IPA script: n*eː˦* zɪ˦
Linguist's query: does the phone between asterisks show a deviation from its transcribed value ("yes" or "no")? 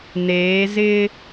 yes